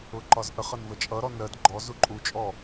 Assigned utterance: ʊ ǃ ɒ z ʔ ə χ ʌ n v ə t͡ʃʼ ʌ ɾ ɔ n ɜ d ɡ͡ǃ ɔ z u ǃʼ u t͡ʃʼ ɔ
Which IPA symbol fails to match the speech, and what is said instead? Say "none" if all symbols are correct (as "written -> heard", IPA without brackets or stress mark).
none